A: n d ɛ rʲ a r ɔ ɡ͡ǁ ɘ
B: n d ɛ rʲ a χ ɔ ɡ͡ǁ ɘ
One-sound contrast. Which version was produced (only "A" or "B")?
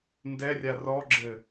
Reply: A